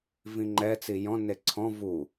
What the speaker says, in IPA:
v ĩ ŋ͡ǃ ɛ t͡s i j ɔ̃ n e ǀʰ ɔ̃ v u

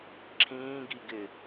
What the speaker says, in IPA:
ǁʰ ĩː ɡ i ɡ ɪ

